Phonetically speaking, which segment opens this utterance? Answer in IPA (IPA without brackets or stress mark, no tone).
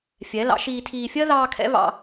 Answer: fʲ